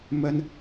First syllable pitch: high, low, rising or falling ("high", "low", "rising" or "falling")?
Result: high